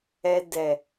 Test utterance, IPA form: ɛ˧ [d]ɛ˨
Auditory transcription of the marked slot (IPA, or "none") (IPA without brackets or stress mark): d